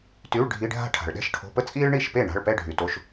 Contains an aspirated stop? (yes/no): yes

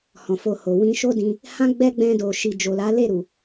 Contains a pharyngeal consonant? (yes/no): no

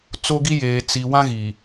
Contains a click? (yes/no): no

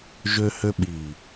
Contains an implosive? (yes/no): yes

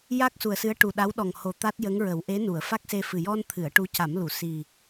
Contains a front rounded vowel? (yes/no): no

